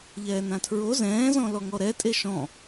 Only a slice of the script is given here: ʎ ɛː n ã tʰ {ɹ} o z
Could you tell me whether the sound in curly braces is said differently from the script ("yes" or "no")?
no